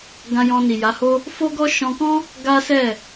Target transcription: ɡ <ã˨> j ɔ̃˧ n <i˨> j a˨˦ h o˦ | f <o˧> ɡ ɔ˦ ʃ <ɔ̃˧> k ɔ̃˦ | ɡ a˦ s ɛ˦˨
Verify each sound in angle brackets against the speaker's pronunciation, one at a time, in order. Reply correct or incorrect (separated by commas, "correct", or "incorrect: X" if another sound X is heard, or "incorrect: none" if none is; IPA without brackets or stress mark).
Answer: incorrect: ã˧, correct, incorrect: o˦, correct